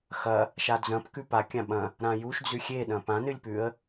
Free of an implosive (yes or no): no